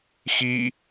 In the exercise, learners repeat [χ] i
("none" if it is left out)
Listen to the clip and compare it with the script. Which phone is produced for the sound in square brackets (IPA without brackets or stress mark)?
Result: x